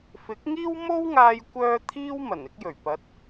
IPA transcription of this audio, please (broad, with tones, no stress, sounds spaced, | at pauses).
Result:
f ɪ˨˥ k̚ ŋ iː˥ w m o˥ w ŋ aː˧ j kʷ œː˥ t̪ʰ iː˥ w m ɐ˨˩ n ɪ˥ k̚ j ɵ˨˩ ɥ p ɐ˨˥ t̚